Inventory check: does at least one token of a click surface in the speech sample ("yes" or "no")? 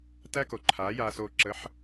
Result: yes